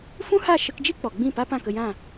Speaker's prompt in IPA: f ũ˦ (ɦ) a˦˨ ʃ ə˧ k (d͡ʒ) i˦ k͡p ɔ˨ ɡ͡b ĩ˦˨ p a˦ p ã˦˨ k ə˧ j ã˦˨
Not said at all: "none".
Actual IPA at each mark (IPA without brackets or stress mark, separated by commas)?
h, d͡ʒ